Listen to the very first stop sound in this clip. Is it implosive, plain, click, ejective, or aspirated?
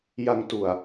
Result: plain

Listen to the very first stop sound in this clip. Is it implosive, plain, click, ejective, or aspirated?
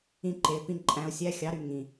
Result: click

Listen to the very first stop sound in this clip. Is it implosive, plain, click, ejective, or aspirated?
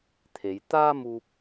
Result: aspirated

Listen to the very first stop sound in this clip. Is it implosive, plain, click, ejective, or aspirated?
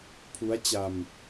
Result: aspirated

